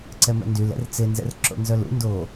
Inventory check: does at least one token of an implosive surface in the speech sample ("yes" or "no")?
no